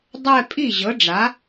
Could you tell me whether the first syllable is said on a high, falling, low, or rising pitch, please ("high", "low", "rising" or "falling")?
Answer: falling